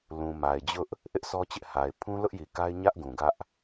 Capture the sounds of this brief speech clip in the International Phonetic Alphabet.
l ũ˨ m a˨ ɪ̯ d͡ʑ ʊ˦ ʔ | ʔ ɪ˦ ʔ sʰ ɔ˦ t͡ɕ ɪ˦ ʔ h a˨ ɪ̯ pʰ ũ˦ l ʊ˦ ʔ j i˨ k a˦ ɪ̯ ɲ ä˦ ʔ ɡ ũ˨ ɡ ä˦ ʔ

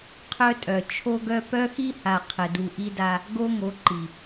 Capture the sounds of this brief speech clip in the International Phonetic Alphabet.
qʰ œ˦ tʼ œ˨ t͡ʃʰ o˦ ɡ œ˦ p œ˦ x i˦ h a˨ qʰ ə˨ d u˨ ʔ i˦ d a˦ | ɡ o˦ ŋ o˨˦ ǃ i˨

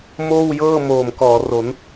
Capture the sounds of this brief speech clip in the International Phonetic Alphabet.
m oː˥˩ w j ɤː˥˩ m oː˨˩ m k ɔː˩˦ r o˩˦ n

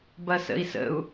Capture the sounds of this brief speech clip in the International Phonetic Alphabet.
b ɐ s ə̰ i̯ s ə̰ u̯

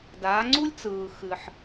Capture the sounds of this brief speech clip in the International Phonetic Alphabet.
d aː˨˦ ŋ͡ǀ u˥ lʲ t͡s ɯː˨ x ɨ˨ ħ

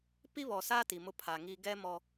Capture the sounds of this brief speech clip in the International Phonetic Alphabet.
p i˦ β ɔ˨ s aː˦ t i˨ m ʊ˦ pʰ aː˨ ŋ iː˦ ɡ ɛ˦ m ɔ˦

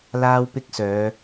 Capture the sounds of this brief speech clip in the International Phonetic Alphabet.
l aː˥ w p ɪ˥ k̚ s œː˨˧

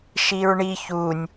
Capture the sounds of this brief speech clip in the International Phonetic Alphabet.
ʃ i ɹ ɳ i ç u nʲ

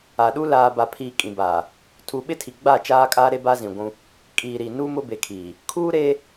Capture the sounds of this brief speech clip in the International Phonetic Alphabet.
a˨ ɗ u˦ l aː˨ b a˨ pʰ iː˨ kʼ ĩ˨ b aː˨ | tʰ u˨ ɓ ɪ˦ tʰ i˨ ɡ͡b a˦˨ t͡ʃ aː˦ kʼ aː˦ ɾ e˦ b a˦ z ĩ˨ ɡʷ ũ˦ | kʼ iː˨ ɾ i˨ n u˦ m ʊ˦ b e˨ kʰ iː˨ | kʰ uː˦ ɾ e˦

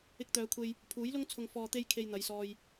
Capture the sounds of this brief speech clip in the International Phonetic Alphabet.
ɪ˧ k̚ t̪ œː˨˧ kʷʰ e˧ j | pʰ uː˨˥ j l ʊ˥ ŋ t͡sʰ ʊ˨ ŋ f ɔː˨ t̪ e˧ j kʰ e˨ j n̪ ɐ˨˧ j s ɔː˧ j

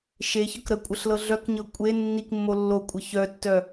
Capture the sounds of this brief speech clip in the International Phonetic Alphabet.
ʃ e ç ɤ k ɾ ə kʷʼ ə ɬ l ɤ ɮ œ k ɲ ɤ kʷʼ e nː i k mː o lː o kʷʼ ə ç œ tː œ

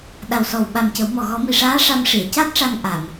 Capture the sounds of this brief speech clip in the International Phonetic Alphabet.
ɗ a˨˩ w s ɔ˨˩ w ɓ a˨˩ m c ə˨˩˦ w m ɔ˨˩ ɣ ɔ˨˩˦ m i˨˩ ʂ aː˧˥ ʂ a˧ m ʂ i˨˩˨ ə̯ c a˦˥ t̚ ʂ a˧ ŋ ʔ a˨˩˨ m

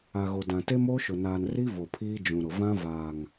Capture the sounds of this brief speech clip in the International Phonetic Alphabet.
a˨ ɣ o˨ d ã˨ t e˦ m oː˦ ʃ ʊ˨ n aː˨ n r i˦ v o˨ pʰ iː˦ d͡ʒ ũ˨ ɾ ʊ˨ v ã˦ v aː˨ ŋ

